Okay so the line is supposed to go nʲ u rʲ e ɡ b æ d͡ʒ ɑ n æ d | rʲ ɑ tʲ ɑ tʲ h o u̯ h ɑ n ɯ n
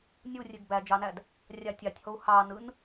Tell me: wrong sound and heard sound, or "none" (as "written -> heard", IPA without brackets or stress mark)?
none